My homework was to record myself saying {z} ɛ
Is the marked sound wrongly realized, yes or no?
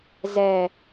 no